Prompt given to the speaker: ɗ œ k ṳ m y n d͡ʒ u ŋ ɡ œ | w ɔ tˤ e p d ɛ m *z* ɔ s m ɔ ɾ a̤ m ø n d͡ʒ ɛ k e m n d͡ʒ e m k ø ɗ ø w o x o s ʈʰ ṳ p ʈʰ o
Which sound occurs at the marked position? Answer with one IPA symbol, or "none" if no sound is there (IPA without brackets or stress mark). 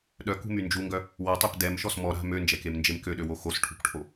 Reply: ʃ